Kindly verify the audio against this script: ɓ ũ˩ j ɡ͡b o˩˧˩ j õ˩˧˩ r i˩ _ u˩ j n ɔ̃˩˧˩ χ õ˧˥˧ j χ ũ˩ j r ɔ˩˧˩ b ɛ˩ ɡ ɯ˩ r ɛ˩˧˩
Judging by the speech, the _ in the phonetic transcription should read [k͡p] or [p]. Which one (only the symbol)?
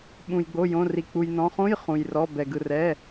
k͡p